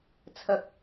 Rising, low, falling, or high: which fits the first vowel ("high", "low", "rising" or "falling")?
low